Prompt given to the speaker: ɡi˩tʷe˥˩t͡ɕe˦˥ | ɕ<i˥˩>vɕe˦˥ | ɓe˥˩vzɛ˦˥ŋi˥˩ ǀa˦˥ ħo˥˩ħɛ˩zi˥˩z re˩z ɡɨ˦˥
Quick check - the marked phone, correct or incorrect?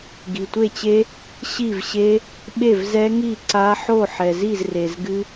correct